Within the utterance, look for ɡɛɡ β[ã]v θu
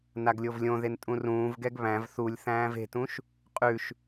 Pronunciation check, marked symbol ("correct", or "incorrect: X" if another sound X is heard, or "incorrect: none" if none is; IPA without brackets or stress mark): incorrect: æ̃